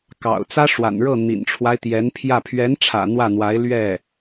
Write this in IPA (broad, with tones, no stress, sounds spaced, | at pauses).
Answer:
k ɑ̰˨˩ ʊ̯ t͡s ä˥ ʂ w a̰˨˩ n ɻ ɤ˥˩ n̪ ḭ˨˩ n ʈ͡ʂʰ w a˦ ɪ̯ t̪ j ɛ˧˥ n pʰ j ä˥˩ pʰ ɥ ɛ˧˥ n ʈ͡ʂʰ ä̰˨˩ n̪ w ä˥˩ n̪ w a˧˥ ɪ̯ l ɥ ɛ˥˩